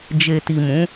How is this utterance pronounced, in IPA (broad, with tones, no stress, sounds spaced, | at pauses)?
d͡ʒ e˨ t i˨ m ũ˨˦